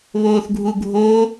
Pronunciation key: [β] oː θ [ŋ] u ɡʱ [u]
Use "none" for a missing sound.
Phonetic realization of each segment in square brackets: β, ɡʱ, o

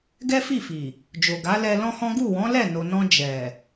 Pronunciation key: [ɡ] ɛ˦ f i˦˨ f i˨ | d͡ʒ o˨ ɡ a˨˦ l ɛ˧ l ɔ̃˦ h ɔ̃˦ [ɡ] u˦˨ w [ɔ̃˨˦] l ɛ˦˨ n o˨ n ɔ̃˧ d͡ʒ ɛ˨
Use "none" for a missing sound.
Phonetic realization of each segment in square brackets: ɡ, ɡ, ɔ̃˨˦

